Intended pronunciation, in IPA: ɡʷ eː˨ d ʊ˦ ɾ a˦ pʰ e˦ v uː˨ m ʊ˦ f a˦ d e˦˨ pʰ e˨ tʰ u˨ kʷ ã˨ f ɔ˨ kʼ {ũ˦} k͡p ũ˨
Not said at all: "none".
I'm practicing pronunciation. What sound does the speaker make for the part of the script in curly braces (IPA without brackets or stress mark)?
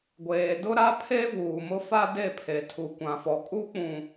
u˦